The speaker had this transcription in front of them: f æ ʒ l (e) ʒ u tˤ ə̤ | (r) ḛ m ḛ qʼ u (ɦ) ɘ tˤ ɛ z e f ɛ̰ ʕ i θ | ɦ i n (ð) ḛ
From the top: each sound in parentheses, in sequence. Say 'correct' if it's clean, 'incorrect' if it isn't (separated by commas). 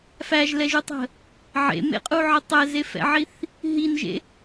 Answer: incorrect, incorrect, incorrect, incorrect